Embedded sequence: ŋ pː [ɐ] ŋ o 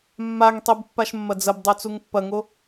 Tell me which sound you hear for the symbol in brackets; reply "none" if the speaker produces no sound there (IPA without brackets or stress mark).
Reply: ɐ